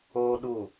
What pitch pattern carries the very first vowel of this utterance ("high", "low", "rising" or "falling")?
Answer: high